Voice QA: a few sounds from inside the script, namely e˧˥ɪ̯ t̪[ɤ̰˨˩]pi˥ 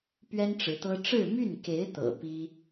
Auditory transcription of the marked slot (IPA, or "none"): ɤ̰˨˩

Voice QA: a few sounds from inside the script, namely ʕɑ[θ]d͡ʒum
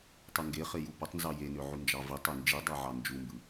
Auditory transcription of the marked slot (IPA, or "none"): n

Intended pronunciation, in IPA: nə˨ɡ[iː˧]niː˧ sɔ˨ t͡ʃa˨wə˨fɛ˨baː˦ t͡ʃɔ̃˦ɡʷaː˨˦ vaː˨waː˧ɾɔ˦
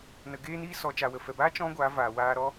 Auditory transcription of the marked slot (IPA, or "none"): eː˧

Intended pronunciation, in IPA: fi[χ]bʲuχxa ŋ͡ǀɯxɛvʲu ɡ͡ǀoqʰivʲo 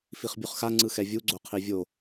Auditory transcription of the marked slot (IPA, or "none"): χ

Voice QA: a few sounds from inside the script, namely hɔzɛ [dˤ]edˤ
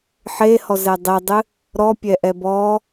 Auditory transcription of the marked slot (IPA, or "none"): dˤ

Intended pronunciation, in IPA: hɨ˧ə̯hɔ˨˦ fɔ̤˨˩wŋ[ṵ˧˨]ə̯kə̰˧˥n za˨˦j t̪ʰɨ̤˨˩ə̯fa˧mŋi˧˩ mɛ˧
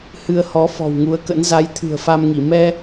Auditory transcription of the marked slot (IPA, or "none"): u˨˦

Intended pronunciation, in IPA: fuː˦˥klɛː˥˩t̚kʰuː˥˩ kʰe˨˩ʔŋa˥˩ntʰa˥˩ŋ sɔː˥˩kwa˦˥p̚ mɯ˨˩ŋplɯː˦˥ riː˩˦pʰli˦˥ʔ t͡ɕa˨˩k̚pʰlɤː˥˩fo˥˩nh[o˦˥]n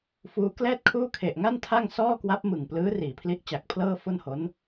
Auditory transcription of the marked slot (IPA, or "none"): o˦˥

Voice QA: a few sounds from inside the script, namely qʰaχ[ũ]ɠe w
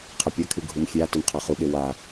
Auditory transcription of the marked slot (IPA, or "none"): u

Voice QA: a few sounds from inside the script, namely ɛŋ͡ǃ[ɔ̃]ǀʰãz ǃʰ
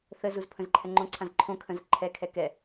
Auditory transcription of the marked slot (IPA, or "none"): õ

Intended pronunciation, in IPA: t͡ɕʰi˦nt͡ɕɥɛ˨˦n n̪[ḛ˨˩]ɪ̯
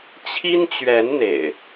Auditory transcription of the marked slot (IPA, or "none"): ḛ˨˩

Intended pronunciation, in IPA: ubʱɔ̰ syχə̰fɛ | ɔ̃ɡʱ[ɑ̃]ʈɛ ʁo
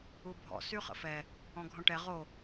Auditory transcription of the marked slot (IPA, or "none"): ɔ̃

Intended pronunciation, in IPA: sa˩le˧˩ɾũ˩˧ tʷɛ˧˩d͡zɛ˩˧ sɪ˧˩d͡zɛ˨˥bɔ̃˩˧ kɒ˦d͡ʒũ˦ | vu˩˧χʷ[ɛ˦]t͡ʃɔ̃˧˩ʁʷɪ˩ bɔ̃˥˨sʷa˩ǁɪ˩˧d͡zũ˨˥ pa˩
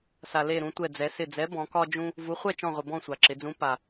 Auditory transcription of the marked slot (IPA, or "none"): ɛ˥˨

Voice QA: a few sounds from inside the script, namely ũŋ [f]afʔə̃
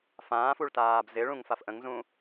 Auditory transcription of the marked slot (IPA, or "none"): f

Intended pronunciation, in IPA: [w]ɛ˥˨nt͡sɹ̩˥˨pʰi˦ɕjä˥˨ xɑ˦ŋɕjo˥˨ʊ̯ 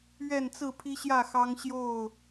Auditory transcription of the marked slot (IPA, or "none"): ɥ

